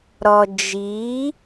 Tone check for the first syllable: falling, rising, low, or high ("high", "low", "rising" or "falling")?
low